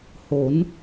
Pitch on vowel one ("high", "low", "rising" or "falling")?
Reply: rising